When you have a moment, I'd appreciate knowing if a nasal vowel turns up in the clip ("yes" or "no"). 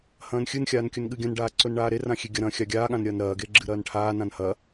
yes